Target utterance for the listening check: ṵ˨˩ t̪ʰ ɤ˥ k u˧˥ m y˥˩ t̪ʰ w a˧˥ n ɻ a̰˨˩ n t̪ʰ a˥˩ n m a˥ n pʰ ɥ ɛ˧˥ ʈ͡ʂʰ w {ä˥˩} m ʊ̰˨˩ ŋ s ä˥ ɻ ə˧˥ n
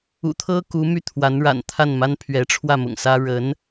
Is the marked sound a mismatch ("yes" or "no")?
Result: no